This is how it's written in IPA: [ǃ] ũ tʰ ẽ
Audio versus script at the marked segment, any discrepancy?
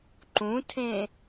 no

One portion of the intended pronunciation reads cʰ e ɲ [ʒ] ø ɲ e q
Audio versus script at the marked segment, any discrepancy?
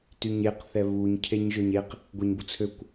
no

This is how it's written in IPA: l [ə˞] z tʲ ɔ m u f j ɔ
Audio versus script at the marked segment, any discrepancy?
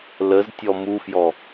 yes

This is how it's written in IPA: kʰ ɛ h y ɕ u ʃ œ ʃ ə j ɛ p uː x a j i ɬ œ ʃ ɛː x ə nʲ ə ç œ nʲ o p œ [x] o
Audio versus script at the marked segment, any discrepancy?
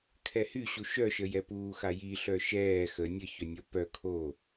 yes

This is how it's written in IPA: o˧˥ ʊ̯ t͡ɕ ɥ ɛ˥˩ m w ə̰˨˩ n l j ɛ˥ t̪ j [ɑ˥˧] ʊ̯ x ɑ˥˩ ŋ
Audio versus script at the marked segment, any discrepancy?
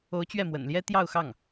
no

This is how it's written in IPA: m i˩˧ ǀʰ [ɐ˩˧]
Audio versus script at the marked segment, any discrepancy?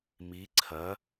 no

